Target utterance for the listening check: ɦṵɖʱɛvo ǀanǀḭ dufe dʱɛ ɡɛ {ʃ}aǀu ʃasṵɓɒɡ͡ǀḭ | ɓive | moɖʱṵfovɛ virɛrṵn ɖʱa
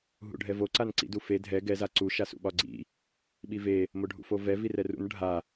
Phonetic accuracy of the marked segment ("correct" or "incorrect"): incorrect